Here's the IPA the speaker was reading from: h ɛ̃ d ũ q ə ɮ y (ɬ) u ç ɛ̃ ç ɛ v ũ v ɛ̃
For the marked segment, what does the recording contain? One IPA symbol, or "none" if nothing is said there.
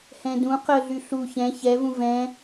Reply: ɬ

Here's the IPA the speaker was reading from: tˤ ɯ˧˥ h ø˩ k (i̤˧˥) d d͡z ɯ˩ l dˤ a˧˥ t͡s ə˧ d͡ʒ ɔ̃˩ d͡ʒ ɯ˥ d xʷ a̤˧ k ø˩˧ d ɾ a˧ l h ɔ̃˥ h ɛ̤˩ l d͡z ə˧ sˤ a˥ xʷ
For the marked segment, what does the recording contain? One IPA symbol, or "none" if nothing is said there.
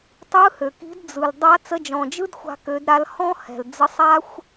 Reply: i̤˧˥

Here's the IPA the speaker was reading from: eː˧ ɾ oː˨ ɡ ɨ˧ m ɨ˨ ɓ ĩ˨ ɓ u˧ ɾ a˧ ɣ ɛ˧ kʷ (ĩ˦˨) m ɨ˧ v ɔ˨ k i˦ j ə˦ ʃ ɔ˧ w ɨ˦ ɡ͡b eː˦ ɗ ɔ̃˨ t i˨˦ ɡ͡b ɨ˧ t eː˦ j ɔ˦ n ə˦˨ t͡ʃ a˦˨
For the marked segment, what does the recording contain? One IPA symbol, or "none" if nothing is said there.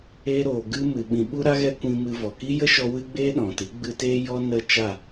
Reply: ĩ˧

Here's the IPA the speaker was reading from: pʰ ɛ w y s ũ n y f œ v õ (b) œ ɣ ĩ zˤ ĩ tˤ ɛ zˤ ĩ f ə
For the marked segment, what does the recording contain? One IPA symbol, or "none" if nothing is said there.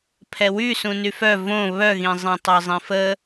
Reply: β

